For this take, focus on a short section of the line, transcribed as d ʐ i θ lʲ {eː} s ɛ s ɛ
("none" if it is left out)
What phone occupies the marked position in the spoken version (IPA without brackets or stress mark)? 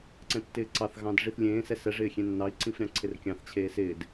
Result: ẽː